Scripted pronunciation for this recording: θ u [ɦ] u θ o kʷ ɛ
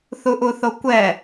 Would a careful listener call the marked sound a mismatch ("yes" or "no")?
yes